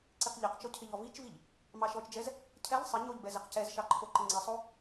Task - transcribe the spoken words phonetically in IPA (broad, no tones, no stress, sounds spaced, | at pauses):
ǀ i q ʎ ɛ q t͡ʃ o cʰ ɪ ʎ ɔ v i t͡ʃ v i ʎ | m ɑ ʃ ɔ t͡ʃ d͡ʒ ɛ z | cʰ ɛ ʎ sˤ ɪ ɲ o ʎ b ɛ z ɪ q c ɛ z ʃ ɑ ǃʰ o ǃ ɪ ŋ͡ǀ i sˤ o